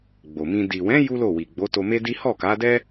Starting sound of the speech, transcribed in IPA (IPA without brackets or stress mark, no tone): ɡ͡b